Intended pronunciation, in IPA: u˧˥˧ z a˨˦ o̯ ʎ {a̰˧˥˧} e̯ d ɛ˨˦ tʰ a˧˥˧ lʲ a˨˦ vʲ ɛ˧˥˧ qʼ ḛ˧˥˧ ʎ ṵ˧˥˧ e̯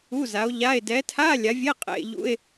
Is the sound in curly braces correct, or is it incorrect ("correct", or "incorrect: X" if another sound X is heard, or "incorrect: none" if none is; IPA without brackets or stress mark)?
incorrect: a˧˥˧